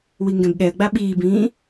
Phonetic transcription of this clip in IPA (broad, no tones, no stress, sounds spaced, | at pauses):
w i ŋ ɡ ɛ̃ b ɠ ɛ ə̯ ɡ͡b a ɓ iː b ĩː